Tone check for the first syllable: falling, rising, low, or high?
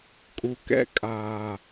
low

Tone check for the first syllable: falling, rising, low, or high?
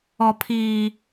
low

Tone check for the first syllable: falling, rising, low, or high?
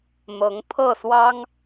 rising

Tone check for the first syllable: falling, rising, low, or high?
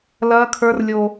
high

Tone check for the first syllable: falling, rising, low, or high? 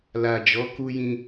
low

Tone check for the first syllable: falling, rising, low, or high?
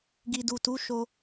low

